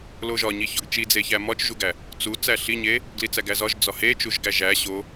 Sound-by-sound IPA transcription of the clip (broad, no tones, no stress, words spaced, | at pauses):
loʒɒɲiçɒɡ t͡ʃid͡zeçæ mɒt͡ʃʒuɡæ | t͡su t͡sæɬiɲe | ɡlit͡sæɡæzɒʒ d͡zɒhe t͡ʃuʒɡæʒæ ɕo